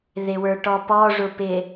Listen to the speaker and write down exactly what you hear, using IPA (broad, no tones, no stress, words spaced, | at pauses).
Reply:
ðɪwə˞ʈɔpɔ ʐʊpɪ